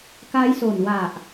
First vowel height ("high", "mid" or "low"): low